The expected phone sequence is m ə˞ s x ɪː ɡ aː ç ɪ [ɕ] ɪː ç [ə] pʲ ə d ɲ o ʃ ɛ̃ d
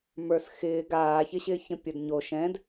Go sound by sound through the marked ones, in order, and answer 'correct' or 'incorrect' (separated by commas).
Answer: correct, incorrect